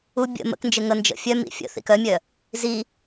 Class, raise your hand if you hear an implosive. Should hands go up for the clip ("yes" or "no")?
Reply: no